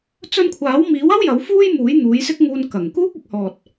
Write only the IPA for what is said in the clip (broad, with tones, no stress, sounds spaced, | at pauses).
t͡s ɵ˧ n kʷʰ aː˨˥ w m iː˨˥ w ɐ˥ w j ɐ˨˥ w f uː˥ j m uː˨˥ j n̪ uː˨˥ j s ɪ˥ k̚ ŋ uː˧ n k ɐ˨˩ ŋ k uː˥ k̚ ɐ˨˥ k̚ h ɔː˨ t̚